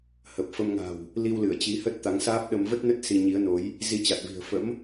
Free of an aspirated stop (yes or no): yes